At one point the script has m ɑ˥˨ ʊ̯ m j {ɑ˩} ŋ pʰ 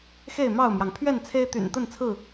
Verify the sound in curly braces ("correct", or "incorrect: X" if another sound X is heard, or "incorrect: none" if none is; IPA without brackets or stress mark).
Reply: correct